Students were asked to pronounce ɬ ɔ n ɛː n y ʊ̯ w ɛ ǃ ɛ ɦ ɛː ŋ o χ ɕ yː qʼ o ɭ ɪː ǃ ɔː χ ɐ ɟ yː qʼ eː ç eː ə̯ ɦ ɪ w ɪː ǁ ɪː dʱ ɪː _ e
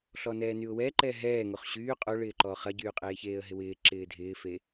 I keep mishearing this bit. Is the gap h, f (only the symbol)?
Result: f